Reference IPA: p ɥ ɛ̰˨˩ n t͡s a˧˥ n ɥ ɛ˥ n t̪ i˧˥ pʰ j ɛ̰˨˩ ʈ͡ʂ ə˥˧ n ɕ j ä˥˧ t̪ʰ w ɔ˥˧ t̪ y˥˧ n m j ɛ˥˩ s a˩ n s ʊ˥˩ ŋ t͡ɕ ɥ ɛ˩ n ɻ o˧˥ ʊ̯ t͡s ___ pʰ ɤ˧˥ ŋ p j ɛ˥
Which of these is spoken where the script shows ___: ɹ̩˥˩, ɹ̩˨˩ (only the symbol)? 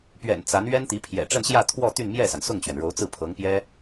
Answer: ɹ̩˥˩